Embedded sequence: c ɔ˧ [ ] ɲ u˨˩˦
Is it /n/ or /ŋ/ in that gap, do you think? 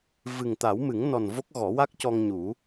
ŋ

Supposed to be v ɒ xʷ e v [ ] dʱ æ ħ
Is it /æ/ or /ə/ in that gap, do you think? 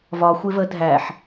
ə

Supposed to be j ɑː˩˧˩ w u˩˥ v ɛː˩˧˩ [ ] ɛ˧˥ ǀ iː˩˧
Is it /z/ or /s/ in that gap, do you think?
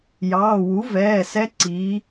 s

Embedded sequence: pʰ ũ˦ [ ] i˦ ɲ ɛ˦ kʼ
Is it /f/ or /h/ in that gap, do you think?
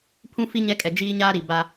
f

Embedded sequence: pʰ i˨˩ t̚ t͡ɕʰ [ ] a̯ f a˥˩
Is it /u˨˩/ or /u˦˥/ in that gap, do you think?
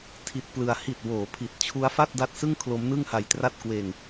u˦˥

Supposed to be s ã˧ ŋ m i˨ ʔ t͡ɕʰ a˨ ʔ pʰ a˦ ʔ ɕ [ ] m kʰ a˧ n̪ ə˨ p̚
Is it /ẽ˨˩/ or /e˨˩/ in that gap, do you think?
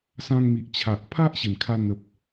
e˨˩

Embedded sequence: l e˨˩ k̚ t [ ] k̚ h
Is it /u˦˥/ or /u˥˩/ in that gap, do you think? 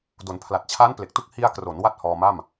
u˥˩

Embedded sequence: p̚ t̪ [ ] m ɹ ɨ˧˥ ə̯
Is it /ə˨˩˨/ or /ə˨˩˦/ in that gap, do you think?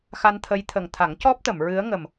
ə˨˩˨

